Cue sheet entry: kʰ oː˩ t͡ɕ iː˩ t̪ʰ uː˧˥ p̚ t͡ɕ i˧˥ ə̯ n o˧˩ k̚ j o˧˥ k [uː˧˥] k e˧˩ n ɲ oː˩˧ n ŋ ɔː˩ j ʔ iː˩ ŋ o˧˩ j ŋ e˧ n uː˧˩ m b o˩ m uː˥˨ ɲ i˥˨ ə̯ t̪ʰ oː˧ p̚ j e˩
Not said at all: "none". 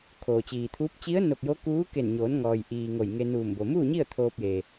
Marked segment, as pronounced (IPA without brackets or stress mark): uː˧˥